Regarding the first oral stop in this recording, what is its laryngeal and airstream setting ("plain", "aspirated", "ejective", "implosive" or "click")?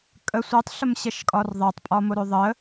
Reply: ejective